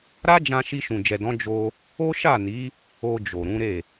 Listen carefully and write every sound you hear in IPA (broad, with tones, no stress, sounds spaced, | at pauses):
ɾ a˦ d͡ʒ ã˧ ʃ i˧ ʃ ũ˨ d͡ʒ ɛ˨ d ɔ̃˨˦ d͡ʒ o˧ | o˦ ʃ a˦˨ n i˨˦ | o˧ d͡ʒ o˨ ɾ ũ˨˦ ɾ e˦˨